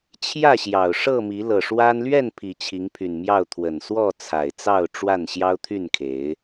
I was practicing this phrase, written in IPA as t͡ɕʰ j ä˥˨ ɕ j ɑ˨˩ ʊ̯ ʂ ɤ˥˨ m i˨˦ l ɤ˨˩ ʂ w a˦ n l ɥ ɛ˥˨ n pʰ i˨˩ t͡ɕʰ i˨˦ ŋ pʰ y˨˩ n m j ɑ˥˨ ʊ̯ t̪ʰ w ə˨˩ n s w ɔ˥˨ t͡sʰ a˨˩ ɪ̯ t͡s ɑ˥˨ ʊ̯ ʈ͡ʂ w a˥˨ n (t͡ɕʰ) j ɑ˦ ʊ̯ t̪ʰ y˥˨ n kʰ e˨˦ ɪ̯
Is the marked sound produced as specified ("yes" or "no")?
no